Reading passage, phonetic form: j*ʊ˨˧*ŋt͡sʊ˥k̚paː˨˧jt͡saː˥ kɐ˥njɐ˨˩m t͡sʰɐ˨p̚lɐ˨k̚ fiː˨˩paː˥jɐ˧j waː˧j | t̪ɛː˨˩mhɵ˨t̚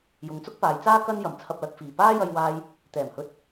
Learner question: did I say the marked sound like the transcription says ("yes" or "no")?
yes